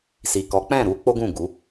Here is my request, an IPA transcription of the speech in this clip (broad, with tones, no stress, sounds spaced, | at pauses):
s i˨ k ɔ˨˦ k͡p ɛ̃˦˨ ɾ u˨˦ k͡p o˦ ɡ ũ˦˨ ɡ u˨˦